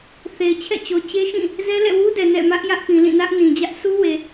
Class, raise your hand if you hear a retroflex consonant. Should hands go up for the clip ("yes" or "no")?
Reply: no